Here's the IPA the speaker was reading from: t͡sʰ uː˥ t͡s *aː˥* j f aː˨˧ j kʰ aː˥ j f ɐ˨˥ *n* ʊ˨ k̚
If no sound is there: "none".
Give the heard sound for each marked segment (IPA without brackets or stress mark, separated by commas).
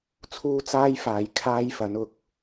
aː˥, n